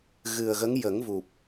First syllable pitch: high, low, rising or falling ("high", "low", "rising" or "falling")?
low